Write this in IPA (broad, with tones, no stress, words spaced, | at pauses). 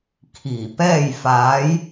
kʰiː˧˩ pɛː˥˨j faː˧˥j